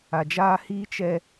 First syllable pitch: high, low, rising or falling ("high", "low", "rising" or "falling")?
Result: low